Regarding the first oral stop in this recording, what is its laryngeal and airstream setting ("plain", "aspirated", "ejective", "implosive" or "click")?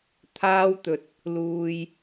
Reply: aspirated